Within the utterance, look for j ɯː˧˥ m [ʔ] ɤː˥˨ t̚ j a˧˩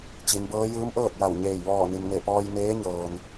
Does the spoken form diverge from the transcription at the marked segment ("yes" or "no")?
no